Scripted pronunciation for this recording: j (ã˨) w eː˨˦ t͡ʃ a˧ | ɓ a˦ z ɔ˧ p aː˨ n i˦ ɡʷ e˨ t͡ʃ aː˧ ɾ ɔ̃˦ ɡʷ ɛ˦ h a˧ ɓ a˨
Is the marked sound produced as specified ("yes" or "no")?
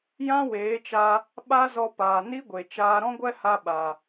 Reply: no